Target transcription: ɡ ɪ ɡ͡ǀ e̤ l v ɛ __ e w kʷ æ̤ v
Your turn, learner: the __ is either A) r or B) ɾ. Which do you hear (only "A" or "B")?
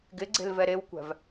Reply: B